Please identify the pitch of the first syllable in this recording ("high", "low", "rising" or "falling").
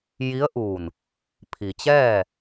rising